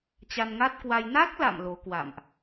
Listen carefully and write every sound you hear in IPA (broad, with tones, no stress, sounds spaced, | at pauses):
t͡ɕ a˧ n ŋ a˦˥ t̚ k w a˧ j n a˦˥ k̚ l a̰˧˨ m l o˨˦ k w a̰˧˨ m ʔ